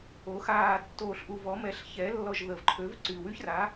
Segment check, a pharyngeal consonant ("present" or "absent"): absent